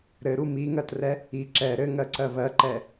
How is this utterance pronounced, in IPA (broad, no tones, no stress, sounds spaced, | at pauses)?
ɾ ɘ ɾ u m i ŋ ɜ t r ɛ | i ǁ ɛ ɾ ɘ ŋ ɜ ǀ ɜ v ɜ ǃ ɛ